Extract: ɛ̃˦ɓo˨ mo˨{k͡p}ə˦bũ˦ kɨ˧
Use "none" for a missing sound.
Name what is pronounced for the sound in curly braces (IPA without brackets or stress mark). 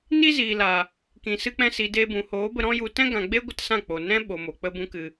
k͡p